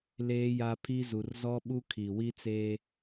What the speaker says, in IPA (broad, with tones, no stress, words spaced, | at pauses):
leː˦ja˦pʰi˦ zu˨rzɔ˦ɓu˦ kʰi˨wi˦t͡seː˦